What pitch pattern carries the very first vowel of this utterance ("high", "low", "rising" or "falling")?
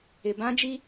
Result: low